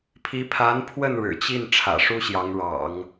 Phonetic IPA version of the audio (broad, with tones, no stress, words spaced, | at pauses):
pʰi˧˥ pʰa˧˥npʰwə˥˩n ɻɻ̩˨˩t͡ɕi˥˩n ʈ͡ʂʰä̰˨˩ʂu˥ɕjɑ˧˥ŋɻɑ̰˨˩˦ŋ